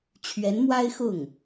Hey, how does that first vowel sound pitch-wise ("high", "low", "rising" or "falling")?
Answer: rising